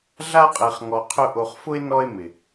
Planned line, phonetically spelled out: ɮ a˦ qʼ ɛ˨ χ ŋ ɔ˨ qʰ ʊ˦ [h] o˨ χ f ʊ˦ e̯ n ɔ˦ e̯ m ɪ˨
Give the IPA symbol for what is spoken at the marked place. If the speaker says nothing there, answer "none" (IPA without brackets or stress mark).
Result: ʔ